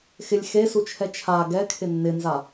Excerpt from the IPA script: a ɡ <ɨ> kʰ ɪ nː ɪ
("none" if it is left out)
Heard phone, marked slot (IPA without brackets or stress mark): ɛ